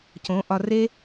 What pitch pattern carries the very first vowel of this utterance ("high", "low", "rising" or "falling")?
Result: rising